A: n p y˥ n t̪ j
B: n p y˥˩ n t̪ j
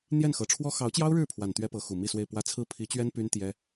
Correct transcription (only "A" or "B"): A